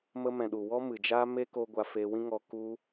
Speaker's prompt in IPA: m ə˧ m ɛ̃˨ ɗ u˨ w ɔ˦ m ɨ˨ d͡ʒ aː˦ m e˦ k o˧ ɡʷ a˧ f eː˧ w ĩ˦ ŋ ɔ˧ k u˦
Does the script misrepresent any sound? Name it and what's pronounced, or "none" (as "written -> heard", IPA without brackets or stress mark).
none